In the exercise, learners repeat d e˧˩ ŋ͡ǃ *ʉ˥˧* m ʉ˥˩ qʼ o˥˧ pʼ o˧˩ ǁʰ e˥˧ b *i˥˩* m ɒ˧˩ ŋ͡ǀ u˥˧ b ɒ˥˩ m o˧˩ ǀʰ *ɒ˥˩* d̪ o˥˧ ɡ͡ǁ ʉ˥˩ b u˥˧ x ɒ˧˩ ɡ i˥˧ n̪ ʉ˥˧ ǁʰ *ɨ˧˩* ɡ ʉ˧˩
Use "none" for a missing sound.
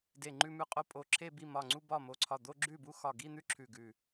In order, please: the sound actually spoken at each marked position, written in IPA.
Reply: ʉ˥˧, i˥˩, ɒ˧˩, ʉ˧˩

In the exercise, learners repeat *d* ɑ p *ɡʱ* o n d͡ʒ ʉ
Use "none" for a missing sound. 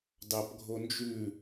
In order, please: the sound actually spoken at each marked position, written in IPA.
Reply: d, ɡʱ

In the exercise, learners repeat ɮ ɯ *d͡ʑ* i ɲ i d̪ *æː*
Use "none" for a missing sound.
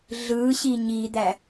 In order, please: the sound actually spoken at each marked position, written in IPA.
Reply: ɕ, æ

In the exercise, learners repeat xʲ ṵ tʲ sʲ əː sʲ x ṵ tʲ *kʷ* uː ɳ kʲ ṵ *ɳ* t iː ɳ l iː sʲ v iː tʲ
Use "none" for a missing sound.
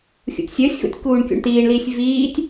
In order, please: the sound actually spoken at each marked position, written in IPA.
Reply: k, ɳ

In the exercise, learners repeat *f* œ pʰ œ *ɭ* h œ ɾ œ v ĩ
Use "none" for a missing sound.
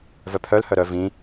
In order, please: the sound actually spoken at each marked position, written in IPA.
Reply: v, l

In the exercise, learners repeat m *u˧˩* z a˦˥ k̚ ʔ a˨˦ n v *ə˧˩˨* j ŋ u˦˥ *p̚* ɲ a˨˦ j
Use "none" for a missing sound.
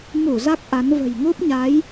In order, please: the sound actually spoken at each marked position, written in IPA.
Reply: u˧˩, ə̤˨˩, p̚

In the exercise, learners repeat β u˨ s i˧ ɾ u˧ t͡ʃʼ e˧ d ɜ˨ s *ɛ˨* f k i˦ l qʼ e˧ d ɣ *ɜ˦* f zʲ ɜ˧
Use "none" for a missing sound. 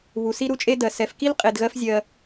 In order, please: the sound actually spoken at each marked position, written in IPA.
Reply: ɛ˨, ɜ˦

